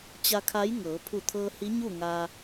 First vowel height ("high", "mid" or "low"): low